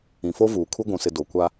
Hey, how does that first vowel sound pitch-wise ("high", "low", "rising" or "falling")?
low